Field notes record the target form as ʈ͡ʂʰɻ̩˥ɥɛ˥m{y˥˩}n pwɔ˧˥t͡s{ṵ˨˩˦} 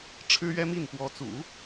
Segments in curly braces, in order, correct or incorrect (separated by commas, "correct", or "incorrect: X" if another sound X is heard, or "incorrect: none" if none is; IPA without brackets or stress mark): incorrect: i˥˩, correct